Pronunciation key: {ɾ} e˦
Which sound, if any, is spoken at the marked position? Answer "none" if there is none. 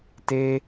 t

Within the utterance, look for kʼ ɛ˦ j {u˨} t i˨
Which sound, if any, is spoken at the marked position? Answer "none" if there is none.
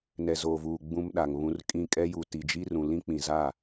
u˨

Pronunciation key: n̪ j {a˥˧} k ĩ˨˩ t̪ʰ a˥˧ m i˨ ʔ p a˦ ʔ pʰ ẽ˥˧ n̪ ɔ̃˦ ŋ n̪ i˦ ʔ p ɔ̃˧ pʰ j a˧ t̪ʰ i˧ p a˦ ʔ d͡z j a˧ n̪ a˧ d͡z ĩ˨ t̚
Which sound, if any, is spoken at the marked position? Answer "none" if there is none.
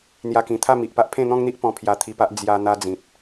a˧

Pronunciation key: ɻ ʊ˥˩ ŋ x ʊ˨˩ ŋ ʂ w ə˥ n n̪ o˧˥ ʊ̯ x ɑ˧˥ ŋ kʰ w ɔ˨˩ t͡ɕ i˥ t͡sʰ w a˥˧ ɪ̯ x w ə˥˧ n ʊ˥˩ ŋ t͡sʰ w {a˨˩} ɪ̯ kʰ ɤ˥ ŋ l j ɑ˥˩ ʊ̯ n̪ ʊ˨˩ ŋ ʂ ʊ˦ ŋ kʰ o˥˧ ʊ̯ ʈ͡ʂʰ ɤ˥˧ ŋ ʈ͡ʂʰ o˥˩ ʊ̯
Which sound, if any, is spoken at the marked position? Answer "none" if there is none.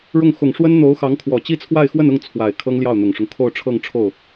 a˨˩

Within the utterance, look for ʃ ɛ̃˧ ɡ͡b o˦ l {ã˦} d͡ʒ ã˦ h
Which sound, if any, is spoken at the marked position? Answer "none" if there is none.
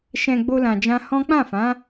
ã˧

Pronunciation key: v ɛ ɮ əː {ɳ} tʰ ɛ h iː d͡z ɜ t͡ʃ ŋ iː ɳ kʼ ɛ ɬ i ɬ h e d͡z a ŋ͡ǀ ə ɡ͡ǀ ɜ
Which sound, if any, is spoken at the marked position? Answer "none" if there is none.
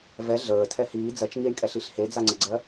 none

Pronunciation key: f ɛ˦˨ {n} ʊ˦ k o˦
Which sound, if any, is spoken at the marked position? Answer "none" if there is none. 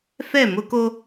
m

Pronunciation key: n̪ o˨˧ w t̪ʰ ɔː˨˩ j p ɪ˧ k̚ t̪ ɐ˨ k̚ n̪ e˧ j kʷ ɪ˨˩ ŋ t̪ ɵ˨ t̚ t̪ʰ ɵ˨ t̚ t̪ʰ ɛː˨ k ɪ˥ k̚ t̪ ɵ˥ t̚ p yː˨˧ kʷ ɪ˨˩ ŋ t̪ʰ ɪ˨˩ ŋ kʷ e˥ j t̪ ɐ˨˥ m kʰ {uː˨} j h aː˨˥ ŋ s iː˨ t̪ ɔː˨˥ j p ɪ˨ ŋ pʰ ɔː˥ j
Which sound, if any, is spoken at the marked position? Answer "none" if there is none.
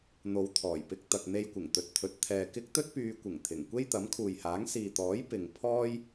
uː˨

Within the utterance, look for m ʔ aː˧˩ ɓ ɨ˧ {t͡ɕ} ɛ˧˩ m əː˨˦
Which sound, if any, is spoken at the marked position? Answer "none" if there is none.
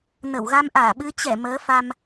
t͡ɕ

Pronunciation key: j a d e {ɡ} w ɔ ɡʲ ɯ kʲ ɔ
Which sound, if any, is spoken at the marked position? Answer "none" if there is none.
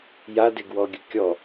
ɡ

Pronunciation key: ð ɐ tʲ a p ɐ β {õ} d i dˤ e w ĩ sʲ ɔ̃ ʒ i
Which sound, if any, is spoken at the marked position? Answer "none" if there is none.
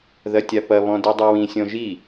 ɔ̃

